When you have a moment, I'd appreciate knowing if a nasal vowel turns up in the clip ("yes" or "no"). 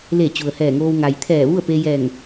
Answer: no